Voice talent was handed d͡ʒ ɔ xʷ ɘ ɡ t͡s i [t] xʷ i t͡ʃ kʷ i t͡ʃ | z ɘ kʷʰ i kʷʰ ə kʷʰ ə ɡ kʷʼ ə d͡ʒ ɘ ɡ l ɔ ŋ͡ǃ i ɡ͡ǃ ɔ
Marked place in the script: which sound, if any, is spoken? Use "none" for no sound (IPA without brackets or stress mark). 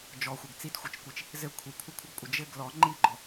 t